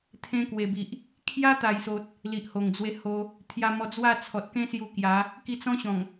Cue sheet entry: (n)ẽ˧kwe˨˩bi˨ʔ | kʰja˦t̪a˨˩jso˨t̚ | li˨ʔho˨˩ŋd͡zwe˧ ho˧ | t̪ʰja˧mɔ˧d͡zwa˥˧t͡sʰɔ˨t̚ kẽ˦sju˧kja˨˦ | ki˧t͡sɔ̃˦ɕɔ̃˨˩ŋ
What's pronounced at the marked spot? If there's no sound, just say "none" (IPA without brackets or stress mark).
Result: t̪ʰ